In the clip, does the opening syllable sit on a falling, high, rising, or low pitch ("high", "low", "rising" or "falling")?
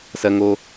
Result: high